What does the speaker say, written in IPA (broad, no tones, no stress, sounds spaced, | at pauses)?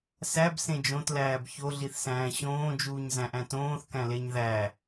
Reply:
s æ b s ẽ d͡ʒ õ t l æː b ç o ɮ i θ s æ̃ː ɕ õː d͡ʒ uː ɲ z æ̃ ʔ æ̃ t õː θ k æ̃ l e ɲ ð æ